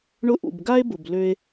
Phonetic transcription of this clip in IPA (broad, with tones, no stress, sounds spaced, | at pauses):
ɳ ʊ˧ ʔ ṵ˨ b ɡ a˦ e̯ b ʊ˨ b l ø˧ e̯